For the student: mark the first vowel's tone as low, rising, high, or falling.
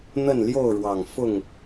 falling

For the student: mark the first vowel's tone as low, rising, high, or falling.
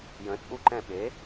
rising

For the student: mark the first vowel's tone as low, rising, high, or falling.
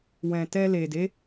low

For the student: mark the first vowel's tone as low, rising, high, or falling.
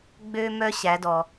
high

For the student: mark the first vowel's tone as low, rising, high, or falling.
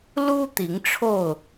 high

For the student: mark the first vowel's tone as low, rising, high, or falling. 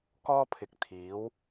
high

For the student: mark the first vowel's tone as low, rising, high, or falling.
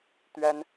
high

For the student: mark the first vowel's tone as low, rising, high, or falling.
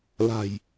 low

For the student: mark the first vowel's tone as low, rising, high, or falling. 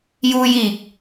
high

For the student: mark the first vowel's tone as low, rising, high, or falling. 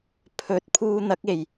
rising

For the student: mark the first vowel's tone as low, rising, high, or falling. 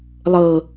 low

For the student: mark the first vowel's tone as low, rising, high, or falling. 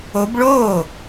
rising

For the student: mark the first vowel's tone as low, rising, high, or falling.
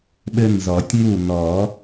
high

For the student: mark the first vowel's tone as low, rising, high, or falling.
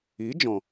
rising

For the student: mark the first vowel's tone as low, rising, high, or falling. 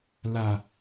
low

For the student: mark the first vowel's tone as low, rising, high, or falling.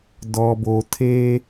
low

